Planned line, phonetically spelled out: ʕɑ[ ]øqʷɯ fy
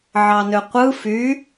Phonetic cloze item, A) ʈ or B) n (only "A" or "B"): B